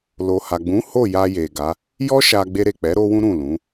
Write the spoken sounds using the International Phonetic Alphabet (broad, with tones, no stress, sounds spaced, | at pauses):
l o˨ h a˨ ɡ͡b ũ˨˦ h o˦˨ j a˧ j e˨ ɡ a˨˦ | j ɔ˦ ʃ a˧ ɡ͡b e˧ ɾ e˨ k͡p ɛ˨˦ ɾ o˦ w ũ˦ ɾ ũ˦˨ l ũ˨˦